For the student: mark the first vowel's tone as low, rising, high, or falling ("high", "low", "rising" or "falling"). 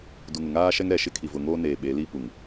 low